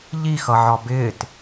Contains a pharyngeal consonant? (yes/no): yes